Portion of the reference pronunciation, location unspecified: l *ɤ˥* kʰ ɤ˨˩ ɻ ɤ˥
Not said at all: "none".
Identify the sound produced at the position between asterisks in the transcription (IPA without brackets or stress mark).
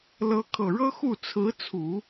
ɤ˧˥